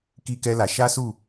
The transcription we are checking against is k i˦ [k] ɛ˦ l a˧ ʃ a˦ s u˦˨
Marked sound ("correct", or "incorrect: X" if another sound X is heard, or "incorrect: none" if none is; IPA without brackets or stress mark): correct